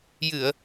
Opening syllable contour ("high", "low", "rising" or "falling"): low